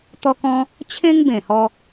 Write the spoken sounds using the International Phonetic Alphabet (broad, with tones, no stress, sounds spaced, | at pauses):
t̪ ɔ˦ k ɔ̃˦ | t͡ɕʰ ẽ˦ ŋ b ẽ˨˩ h ɔ˧